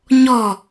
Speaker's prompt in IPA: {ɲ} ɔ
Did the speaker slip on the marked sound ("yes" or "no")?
no